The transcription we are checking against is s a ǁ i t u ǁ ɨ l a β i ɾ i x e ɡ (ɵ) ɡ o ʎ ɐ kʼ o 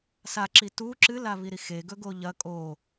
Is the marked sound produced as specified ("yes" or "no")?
yes